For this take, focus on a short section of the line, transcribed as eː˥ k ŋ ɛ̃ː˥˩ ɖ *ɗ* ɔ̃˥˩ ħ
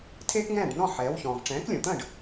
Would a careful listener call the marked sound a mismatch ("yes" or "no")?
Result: yes